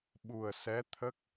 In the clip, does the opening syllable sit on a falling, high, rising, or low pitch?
low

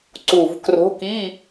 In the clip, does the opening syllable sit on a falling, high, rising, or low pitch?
low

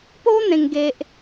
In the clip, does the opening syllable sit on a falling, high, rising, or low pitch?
high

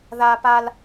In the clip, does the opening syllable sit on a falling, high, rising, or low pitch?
high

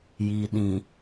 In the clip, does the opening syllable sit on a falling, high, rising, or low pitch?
low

